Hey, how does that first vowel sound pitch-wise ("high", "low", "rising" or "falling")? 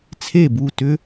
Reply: falling